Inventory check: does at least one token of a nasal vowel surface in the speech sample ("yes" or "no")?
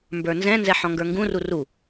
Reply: yes